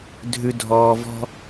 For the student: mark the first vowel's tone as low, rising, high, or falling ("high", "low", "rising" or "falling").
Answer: low